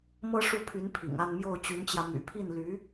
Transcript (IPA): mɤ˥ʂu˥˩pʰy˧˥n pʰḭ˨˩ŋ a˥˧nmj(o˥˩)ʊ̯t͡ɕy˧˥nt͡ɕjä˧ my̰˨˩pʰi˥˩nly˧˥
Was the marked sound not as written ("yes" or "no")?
no